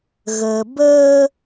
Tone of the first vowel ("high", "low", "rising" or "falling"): low